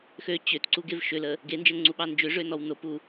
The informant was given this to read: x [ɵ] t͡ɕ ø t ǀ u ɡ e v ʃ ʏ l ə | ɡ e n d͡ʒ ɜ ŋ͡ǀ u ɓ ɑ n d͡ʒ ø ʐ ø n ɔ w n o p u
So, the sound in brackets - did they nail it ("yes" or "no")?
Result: no